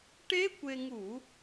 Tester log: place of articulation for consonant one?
retroflex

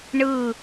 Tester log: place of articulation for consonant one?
retroflex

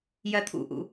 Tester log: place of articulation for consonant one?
palatal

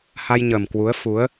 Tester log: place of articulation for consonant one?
glottal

